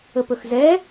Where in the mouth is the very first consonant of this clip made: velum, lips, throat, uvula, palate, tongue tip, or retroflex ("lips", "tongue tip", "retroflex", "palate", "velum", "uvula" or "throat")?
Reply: lips